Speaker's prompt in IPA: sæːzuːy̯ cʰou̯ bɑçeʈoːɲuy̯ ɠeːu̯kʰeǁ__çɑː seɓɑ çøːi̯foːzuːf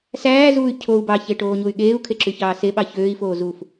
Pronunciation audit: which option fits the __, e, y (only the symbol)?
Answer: y